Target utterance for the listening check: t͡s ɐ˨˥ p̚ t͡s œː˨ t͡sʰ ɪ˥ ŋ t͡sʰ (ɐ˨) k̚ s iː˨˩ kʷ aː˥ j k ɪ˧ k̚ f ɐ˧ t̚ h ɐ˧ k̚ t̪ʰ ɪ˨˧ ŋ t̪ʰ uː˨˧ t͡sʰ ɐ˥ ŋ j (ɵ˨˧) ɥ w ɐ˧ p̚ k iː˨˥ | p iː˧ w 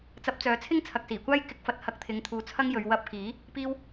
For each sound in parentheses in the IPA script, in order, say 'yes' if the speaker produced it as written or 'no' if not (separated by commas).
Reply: yes, yes